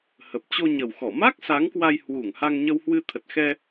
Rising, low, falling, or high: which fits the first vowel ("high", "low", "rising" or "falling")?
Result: low